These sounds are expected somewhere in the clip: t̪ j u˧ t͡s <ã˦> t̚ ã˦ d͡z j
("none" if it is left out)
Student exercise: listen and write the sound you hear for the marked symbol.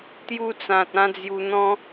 ã˨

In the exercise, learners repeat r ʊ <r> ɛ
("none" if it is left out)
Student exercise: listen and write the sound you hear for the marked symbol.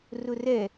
r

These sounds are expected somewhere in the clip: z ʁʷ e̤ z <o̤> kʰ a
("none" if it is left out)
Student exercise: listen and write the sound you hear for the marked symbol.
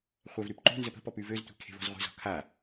ɔ̤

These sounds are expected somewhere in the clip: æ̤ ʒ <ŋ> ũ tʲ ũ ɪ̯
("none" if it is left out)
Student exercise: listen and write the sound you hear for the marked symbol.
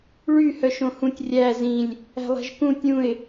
k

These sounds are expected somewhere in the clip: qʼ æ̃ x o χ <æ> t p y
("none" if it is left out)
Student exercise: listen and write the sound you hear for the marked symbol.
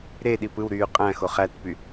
æ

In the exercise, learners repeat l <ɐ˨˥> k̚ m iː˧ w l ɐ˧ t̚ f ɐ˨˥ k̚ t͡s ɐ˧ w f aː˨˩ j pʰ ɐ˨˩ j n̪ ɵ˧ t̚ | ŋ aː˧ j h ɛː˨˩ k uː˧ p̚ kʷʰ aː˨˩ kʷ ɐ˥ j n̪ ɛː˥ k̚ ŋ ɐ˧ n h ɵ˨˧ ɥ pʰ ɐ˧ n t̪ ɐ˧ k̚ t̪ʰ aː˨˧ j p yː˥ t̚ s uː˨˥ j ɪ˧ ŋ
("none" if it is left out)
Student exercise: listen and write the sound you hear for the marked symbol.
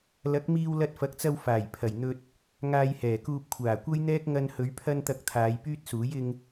ɐ˨˥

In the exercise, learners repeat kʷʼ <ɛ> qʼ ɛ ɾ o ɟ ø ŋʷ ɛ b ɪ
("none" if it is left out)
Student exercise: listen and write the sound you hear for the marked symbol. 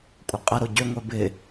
ɪ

